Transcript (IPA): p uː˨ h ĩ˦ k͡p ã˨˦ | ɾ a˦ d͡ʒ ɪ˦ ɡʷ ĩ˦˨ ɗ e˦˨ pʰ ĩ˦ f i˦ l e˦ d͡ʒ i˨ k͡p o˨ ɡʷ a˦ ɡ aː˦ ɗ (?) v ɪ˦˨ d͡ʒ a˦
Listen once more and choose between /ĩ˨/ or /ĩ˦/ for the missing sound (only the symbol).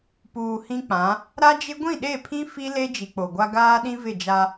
ĩ˦